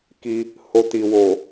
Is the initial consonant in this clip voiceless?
yes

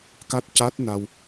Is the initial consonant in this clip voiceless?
yes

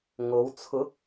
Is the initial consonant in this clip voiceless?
no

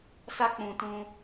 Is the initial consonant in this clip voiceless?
yes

